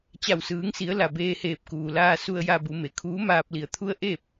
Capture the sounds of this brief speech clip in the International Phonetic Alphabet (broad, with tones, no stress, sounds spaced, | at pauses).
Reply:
t͡ɕ a˧˩ w s ɯː˩˧ ŋ s i˩˧ ə̯ l a˩ b eː˧ h eː˧˩ p̚ k uː˩ l aː˧ s u˧ ə̯ j a˧ b u˩˧ m e˩ kʰ uː˧˥ m aː˧ p̚ l i˧˩ ə̯ t̪ʰ u˧ ə̯ ʔ e˥˨ p̚